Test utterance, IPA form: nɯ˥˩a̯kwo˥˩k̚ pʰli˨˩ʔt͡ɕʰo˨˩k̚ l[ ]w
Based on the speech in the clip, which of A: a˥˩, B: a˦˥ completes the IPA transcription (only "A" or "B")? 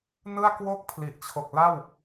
A